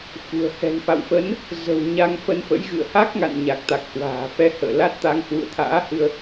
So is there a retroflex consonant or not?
no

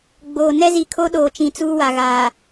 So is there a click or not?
no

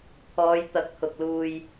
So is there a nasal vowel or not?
no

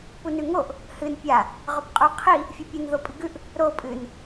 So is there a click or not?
no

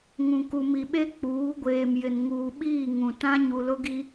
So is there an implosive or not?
yes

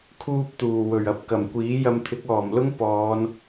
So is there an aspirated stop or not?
yes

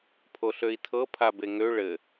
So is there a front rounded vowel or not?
yes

